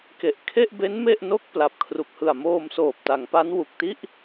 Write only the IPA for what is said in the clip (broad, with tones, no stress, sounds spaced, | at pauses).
k e˨˩ ʔ kʰ e˥˩ ʔ b e˦˥ n m e˥˩ ʔ n o˥˩ k̚ p l a˨˩ p̚ kʰ r u˨˩ k̚ h ɯ˨˩ a̯ m oː˧ m s oː˨˩ p̚ t a˩˦ ŋ p a˦˥ n w u˨˩ k̚ t i˥˩ ʔ